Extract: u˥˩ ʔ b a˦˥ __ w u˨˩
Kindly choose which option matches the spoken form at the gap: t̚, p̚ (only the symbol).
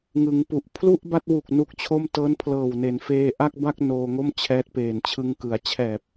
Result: t̚